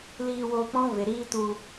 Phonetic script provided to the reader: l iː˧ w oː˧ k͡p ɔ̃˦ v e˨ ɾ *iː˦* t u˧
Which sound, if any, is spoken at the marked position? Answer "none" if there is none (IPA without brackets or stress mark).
iː˦